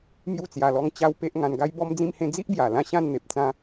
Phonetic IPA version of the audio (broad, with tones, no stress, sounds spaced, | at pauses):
m j u˥˧ t͡s j a˧ l ɔ˦ ŋ t͡ɕ a˦ w p e˦ ʔ ŋ ã˧ n ɡ a˦ j b ɔ˦ m d͡z ĩ˥˧ m h ẽ˥˧ d͡z i˦ ʔ b j a˨˩ l ã˥˧ ɕ ã˥˧ n n̪ e˨ p̚ t͡s ã˦